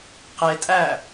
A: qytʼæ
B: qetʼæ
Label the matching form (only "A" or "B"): B